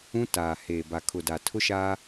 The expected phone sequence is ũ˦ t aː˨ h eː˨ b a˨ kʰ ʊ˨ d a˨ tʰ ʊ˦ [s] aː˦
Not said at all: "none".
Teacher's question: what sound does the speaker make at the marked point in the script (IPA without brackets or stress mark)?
ʃ